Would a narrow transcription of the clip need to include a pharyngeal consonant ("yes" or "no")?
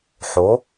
yes